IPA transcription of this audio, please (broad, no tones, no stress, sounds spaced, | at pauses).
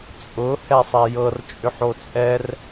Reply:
t͡sʼ ʊ h ɛ sˤ ɛ j ɤ r t͡ʃʼ ʏ ħ o t͡sʼ ɛ r